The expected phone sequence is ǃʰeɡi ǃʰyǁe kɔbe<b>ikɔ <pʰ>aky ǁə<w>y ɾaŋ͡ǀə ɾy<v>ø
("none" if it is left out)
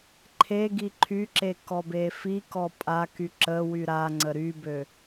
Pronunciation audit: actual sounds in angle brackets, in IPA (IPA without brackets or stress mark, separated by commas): f, pʼ, w, b